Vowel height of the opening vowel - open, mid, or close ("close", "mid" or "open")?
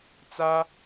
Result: open